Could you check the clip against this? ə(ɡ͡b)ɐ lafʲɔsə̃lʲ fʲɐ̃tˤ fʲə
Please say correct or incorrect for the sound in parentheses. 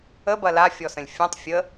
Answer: incorrect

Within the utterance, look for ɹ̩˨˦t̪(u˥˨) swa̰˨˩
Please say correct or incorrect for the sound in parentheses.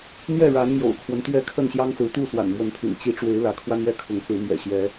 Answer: correct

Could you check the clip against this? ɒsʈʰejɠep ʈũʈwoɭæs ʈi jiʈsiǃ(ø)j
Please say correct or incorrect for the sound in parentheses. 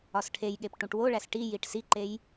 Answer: incorrect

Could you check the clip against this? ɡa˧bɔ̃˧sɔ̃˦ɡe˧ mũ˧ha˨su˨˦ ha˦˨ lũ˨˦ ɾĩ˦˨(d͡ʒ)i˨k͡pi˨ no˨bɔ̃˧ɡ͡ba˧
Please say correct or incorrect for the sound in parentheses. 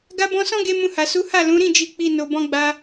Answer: correct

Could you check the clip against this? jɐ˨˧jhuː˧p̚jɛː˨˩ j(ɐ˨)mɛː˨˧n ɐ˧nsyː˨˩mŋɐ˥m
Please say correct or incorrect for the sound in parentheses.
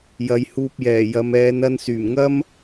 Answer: correct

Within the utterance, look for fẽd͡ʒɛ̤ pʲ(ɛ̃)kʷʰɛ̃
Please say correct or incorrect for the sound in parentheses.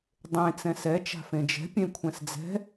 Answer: incorrect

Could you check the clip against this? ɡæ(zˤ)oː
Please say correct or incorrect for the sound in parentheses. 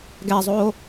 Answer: correct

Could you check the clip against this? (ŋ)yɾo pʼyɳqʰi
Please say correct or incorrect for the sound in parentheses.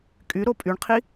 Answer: incorrect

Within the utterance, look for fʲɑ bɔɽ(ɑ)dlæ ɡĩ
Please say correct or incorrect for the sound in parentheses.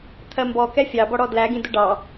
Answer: incorrect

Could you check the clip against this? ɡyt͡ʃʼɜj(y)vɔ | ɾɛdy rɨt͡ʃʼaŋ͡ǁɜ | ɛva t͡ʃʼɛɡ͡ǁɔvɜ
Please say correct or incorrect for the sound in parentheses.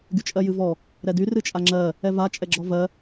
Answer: incorrect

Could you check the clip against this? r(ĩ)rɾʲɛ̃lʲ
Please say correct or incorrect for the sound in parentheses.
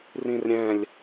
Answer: correct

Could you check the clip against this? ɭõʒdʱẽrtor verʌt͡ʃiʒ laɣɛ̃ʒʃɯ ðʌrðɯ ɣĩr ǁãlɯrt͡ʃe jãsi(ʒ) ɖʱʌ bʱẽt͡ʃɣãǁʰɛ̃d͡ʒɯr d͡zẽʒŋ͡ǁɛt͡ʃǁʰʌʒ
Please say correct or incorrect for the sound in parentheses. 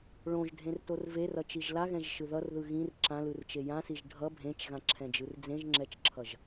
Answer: correct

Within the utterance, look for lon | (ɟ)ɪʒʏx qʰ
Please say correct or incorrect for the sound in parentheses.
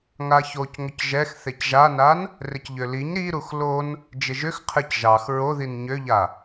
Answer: incorrect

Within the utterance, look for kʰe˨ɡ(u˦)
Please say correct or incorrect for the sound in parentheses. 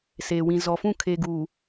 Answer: incorrect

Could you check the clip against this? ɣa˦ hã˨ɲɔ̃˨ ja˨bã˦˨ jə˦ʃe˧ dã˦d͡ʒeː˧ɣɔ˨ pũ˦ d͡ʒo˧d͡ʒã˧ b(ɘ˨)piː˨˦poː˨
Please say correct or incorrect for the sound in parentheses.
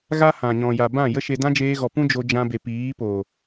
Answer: incorrect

